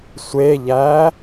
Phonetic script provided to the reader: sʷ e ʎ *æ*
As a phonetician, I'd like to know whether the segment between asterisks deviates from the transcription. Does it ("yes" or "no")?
no